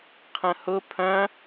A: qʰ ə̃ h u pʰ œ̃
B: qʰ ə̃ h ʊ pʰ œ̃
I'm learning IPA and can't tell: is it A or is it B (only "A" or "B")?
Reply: B